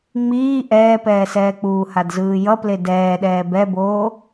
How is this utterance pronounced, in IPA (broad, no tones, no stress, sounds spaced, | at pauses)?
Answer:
ŋ͡m iː ʔ ɛː p ɛː s ɛː k͡p uː h a d z ɯː j ʌ p l e d ɛː ɗ ɛː b ɛ b oː